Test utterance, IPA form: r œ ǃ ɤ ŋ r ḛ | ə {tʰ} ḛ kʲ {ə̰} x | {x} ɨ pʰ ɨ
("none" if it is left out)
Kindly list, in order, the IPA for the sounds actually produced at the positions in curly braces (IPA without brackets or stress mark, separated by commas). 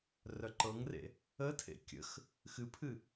tʰ, ə̰, x